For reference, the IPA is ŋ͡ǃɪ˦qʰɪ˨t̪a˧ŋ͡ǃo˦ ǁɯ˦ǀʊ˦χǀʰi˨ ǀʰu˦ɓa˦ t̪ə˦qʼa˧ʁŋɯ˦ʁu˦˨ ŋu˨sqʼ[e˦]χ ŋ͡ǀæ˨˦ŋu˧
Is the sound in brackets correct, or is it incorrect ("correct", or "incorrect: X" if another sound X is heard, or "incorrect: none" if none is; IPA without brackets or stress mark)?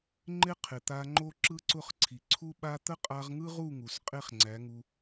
correct